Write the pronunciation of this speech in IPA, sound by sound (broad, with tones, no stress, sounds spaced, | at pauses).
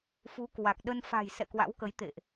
f u˨˦ k w a˨˩ k̚ ɗ ə˧ n f a̤˨˩ j s ɛ̰˧˨ k w a̰˧˥ w k ə˨˦ j t̪ ḛ˧˨ ʔ